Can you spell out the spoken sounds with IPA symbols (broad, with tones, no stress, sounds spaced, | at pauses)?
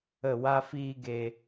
ə˦˨ w a˦ f iː˦ ɡ e˧